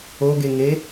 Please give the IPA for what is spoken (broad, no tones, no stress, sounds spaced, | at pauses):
o ɡ e ŋ e